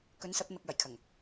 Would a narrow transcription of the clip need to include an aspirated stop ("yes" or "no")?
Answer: yes